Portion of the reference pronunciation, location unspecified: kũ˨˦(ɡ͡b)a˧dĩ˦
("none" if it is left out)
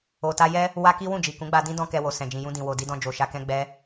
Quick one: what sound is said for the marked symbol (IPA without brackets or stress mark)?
ɡ͡b